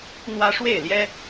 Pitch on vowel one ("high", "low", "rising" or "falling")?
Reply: high